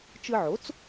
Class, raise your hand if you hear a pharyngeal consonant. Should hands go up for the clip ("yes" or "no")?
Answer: yes